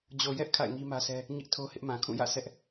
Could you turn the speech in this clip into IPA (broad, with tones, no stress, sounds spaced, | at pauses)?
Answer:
d͡ʑ o˨ j ɛ˦ ʔ kʰ a̰˦˨ ɪ̯ ŋ i˦ m ä˦ sʰ ɛ˦ | ɲ ɪ˦ ʔ tʰ o˦ h ɪ˦ ʔ m ã˨ kʰ ũ˦˨ j ä̰˦˨ sʰ ɛ˦ ʔ